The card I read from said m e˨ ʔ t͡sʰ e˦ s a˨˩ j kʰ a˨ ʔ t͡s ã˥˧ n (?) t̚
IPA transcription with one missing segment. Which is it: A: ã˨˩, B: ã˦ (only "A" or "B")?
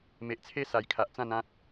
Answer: B